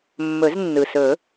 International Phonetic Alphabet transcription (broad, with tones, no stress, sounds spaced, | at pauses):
mː ɵ˨˩˦ z nː ɯ˩ s ɵ˨˩˦